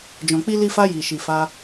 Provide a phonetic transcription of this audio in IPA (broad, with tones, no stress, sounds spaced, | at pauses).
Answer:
d͡ʒ ɔ̃˨ k͡p i˧ l i˧ f a˧ j i˨ ʃ i˨ f a˧